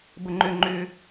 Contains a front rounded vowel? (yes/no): yes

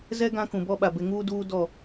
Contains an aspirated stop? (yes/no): no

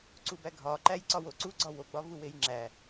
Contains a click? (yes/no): yes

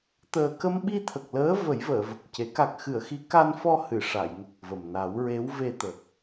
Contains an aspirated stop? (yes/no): yes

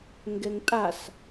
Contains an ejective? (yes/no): yes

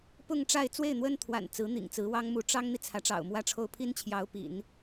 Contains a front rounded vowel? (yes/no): no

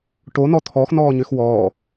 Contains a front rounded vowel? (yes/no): yes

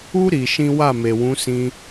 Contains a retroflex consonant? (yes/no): no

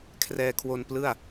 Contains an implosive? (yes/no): no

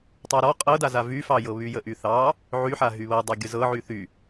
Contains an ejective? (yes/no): yes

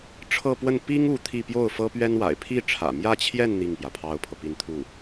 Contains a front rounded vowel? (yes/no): no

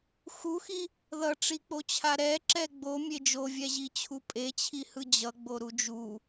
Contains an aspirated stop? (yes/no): yes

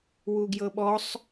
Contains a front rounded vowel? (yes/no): no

